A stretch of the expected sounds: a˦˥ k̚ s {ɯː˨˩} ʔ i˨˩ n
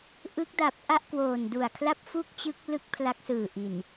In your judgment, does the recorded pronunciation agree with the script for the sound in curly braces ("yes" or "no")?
yes